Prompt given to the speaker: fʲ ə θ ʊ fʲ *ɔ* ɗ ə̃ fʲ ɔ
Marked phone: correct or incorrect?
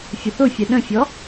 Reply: incorrect